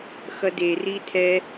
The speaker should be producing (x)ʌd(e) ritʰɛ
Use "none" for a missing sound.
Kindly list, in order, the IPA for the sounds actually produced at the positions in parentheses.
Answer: x, e

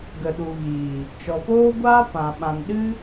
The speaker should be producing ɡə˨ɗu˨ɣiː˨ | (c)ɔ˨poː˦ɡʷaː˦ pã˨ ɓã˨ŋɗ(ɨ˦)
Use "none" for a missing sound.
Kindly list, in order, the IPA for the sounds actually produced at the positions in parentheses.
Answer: t͡ʃ, ɨ˦

